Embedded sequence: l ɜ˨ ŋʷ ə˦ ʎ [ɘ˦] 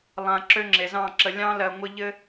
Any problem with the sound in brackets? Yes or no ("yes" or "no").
no